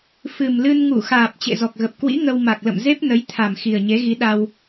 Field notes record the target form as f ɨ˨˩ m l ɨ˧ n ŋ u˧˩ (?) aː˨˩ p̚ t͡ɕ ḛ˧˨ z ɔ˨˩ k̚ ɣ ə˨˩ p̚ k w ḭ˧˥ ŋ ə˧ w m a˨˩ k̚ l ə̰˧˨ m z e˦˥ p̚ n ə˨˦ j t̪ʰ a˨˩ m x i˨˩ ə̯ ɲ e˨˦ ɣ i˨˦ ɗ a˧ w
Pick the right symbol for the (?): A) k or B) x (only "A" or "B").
B